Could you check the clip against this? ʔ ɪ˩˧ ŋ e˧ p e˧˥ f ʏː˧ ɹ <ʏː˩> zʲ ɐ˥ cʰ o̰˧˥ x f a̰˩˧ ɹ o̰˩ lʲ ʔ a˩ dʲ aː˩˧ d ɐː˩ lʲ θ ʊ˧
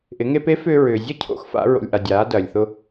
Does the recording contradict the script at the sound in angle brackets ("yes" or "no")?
no